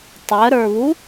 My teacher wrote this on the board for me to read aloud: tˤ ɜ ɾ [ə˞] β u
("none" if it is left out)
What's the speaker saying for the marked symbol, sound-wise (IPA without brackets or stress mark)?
ə˞